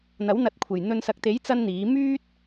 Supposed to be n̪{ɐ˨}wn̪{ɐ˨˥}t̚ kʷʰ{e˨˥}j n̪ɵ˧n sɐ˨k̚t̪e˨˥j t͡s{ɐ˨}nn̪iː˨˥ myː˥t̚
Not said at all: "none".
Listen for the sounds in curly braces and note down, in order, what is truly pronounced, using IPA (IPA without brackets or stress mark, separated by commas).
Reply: ɐ˨˥, ɐ˨˥, e˨˩, ɐ˥